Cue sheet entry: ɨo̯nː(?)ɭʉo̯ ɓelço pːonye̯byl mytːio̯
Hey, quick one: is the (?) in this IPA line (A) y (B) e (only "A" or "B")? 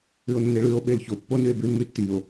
B